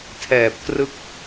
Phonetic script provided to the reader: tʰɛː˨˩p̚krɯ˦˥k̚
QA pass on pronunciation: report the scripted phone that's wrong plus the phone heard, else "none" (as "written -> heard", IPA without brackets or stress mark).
none